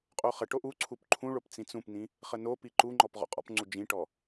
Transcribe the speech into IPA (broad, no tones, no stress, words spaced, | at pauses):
qʼoχəʈo ʔuǀʰup ǃʰũɭop t͡sĩt͡sũpnĩ | χənopi ǃuŋ͡ǃɔp ʁɔ̰qʼɔ̰pŋ͡ǀu d͡ʒĩʈɔ